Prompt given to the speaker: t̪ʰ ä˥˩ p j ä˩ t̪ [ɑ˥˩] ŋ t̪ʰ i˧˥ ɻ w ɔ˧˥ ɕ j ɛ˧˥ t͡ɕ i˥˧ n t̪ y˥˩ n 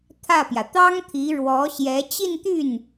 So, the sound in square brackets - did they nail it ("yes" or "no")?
no